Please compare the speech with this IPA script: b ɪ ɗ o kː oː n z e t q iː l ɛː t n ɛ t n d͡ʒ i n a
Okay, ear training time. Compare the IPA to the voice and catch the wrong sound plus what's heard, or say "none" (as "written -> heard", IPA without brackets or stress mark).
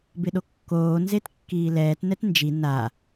q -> kː